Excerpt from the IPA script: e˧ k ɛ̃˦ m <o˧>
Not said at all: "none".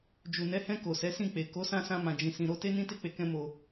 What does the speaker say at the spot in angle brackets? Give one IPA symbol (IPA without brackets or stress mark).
o˧